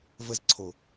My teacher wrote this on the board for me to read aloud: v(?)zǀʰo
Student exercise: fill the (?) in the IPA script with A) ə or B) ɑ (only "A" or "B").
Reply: A